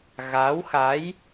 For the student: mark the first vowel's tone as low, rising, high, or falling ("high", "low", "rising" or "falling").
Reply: rising